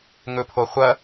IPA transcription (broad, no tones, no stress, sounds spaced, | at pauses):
ŋ ɵ pʰ o χʷ ɐ